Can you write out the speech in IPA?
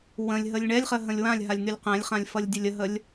w ə̃ lʲ ɦ ə lʲ ɳ ɛ lʲ χ ə ɦ ə̃ lʲ w ã lʲ ɦ a lʲ n̪ y lʲ q ɛ̃ lʲ χ ã lʲ f ʌ lʲ dʲ ə lʲ ə ɦ ə lʲ

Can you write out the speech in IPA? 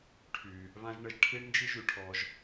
ʈʰ y˩ | β ã˥ ʒ ɳ ə˧ ʒ ʈʰ i˥ ɳ n d͡ʒ i˥ ʒ y˧ ʈʰ ɔ˧ ʒ

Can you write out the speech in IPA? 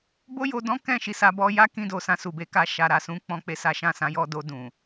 b o˦ j o˧ d ɔ̃˦ k ɛ̃˦˨ ʃ i˧ s a˧ b ɔ˧ j a˦ k ĩ˧ d o˨ s ã˧ s u˨ b e˨˦ k a˧ ʃ a˨ ɾ a˨ s ũ˨˦ k͡p ɔ̃˦ k͡p e˧ s a˦ ʃ ã˦˨ s ã˨˦ j ɔ˧ d o˧ d ũ˨

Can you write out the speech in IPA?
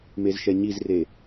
m e z ʃ ɛ ɲ i z r e

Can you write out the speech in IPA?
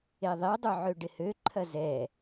e ðˤ e dˤ ø ʕ ø ɖ ɪ h ø ǃʰ ɐ z ɛ

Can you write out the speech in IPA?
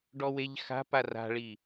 ɖ ɔ w e ʎ x a̤ p a r a̤ ɭ i

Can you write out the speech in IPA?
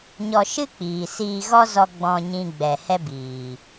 ɲ ɔ˧ ʃ ɨ˦ k͡p iː˨ s iː˧ ɣ ɔ˦ z ɔ˧ ɡ͡b ɔ̃˧ ɲ ĩ˧ ɡ͡b ɛ˨ h ɛ˦ b iː˨

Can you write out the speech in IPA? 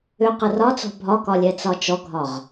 ʏ q ə r ɒ t͡s ɔ̤ bʱ ɒ k ɒ lʲ ɛ t͡s ɒ t͡ʃ ɔ ɡʱ ɒ ʁ

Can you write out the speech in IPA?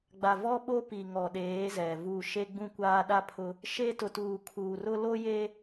ɡ͡b a˨ v ɔ˦ ɓ o˦ p i˨ ŋ ɔ˨ ɗ eː˨˦ z ɛ˨ v u˦˨ ʃ e˦ ɡ͡b ũ˦ kʷ aː˦ ɗ a˦ pʰ ʊ˦ | ʃ e˦ t ʊ˨ t uː˨ kʰ uː˨ r ʊ˦ l o˦ j e˦

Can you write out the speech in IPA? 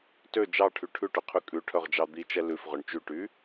t ø d͡ʒ ɑ ʈʰ y ʈʰ ʉ ʈ ɵ qʰ y kʼ ʉ ʈʰ œ ʁ d͡ʒ ɑ d̪ i t͡ʃ ɛ l ʉ f ʁ ɵ ɳ t͡ʃ y ʈ y

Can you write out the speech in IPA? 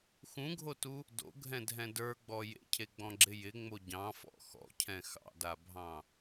x ũ ɡʱ o t u | d o̰ ɡʱ ɛ̃ dʱ ɛ̃ d ə˞ ɡ͡b ɔ j ḛ cʰ e ɡ͡b ɔ̃ ɡ͡ǁ ɪ j ɪ ŋ͡m o ɟ ɑ̃ f ɔ̰ x ɔ̰ cʰ ɛ̃ x ɑ̰ d a bʱ ɑ̃

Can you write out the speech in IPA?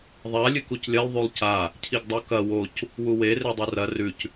ðˤ a lʲ ɨ k u c lʲ ɐ lˠ ðˤ u lˠ c a | cʰ i ɡ dˤ u k ɐ w o c | w u w e r e dˤ u r ɐ r ʉ c

